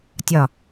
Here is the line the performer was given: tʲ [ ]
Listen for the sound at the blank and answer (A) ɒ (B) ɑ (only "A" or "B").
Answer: A